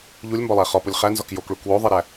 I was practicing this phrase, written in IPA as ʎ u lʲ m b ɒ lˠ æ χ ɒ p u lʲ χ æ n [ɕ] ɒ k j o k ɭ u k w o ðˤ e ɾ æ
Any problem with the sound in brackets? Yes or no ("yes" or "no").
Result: yes